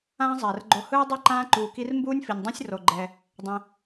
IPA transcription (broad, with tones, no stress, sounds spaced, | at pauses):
ãː˦ zˤ ɛː˨ r ɡ͡ǃ o˧ h ɯː˦ dˤ ɯ˦˨ ǃ ãː˦ ǃ uː˧ k i˦ r m b uː˦ nʲ f i˨ nʲ dˤ ẽ˦ sʲ r o˧ ɡ͡ǃ ɛ˧ | dˤ ẽ˧